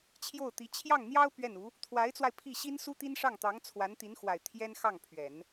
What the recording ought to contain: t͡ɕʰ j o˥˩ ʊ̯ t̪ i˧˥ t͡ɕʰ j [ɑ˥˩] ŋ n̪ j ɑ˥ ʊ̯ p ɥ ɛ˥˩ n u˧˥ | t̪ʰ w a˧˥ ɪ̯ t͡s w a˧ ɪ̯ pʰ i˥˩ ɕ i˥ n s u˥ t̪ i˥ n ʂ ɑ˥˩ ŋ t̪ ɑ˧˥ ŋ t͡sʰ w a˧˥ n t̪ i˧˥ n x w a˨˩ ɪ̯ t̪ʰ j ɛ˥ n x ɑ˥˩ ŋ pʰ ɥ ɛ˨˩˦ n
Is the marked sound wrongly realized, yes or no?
no